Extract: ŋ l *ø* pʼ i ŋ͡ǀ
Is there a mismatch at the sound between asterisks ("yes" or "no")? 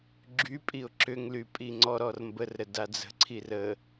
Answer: yes